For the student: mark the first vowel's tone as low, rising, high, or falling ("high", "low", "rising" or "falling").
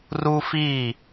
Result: high